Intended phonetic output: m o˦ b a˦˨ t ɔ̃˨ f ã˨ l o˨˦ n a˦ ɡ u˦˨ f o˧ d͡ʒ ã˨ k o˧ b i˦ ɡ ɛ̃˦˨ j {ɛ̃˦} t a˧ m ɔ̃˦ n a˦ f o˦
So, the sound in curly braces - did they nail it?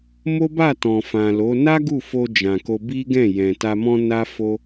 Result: no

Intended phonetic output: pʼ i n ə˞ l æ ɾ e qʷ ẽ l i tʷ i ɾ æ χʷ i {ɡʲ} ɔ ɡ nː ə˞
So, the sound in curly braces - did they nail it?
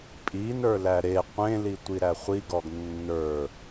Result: no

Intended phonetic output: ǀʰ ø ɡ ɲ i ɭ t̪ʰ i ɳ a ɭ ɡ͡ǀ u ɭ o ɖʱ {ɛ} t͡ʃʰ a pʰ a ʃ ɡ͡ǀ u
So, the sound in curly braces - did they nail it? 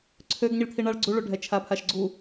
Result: yes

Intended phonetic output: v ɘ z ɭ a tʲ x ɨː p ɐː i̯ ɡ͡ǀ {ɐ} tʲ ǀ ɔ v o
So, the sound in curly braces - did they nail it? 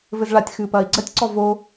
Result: yes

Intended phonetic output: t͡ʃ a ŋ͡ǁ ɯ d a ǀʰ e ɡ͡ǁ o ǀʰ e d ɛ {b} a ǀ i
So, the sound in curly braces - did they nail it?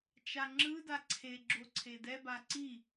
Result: yes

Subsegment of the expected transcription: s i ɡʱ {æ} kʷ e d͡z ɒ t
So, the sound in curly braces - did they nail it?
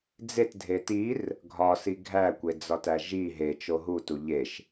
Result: yes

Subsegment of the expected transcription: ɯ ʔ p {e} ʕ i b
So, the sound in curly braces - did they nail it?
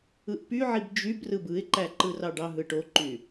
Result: no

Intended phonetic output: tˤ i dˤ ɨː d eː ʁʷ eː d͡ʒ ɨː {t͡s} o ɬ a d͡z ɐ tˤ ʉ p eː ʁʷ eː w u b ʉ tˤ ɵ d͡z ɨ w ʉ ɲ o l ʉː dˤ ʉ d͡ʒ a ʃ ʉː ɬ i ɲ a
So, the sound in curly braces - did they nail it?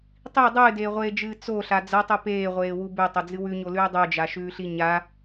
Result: yes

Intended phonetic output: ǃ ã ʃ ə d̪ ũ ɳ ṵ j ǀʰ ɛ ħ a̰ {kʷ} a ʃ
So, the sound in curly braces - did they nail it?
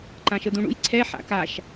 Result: no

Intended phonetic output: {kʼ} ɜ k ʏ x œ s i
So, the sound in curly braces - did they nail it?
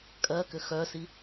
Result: yes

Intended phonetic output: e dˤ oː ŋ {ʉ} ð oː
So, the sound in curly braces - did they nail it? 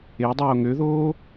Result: no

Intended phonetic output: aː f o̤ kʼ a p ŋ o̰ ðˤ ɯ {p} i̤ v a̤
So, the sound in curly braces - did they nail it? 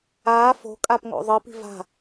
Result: yes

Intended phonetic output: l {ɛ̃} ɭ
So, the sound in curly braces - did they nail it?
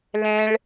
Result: yes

